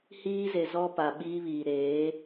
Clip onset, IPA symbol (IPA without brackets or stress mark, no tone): h